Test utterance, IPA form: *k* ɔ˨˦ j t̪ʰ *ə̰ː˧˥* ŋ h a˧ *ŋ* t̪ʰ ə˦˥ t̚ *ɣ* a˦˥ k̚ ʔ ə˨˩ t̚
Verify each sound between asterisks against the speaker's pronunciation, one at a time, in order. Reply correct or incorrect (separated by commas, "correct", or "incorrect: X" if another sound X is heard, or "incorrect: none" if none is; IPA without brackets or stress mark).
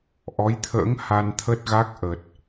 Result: incorrect: ʔ, correct, incorrect: n, correct